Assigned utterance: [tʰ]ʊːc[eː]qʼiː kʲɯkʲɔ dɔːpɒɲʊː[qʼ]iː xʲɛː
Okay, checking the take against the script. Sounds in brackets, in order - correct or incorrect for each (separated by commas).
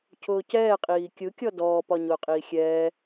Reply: incorrect, incorrect, correct